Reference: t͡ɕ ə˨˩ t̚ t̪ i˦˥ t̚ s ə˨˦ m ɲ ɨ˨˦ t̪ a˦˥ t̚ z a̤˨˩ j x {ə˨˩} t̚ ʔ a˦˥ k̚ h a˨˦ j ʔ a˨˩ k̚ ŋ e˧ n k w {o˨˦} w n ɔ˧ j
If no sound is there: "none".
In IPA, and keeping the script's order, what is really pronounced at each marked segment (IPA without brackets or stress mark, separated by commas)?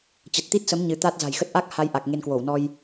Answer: ə˦˥, o˧˩